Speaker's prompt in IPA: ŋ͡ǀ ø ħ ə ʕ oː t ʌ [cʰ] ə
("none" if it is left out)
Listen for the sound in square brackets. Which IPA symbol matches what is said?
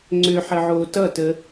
t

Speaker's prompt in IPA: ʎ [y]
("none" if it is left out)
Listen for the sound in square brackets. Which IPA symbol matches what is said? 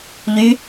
y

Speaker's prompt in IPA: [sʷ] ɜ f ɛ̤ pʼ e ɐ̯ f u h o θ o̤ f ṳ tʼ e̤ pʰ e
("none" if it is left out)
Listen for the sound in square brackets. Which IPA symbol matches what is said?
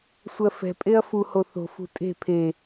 sʷ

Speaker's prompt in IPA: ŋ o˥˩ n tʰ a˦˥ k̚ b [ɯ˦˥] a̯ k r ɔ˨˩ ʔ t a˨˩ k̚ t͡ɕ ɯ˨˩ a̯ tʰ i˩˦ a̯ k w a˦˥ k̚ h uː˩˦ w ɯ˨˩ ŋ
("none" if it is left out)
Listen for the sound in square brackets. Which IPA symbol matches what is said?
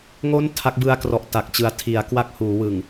ɯ˧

